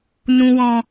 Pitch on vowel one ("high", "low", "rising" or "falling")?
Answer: low